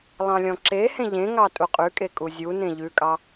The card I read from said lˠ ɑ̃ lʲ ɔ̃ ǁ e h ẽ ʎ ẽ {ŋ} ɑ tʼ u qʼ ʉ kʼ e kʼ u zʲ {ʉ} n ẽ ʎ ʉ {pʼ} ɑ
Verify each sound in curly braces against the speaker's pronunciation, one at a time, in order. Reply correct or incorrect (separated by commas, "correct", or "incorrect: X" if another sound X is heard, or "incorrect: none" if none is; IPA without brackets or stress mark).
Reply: correct, incorrect: u, incorrect: kʼ